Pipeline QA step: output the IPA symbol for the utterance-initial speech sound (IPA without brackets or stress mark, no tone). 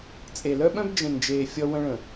t͡sʼ